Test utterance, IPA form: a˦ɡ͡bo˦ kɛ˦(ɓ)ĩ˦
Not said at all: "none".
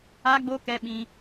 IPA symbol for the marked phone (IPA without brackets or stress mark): ɓ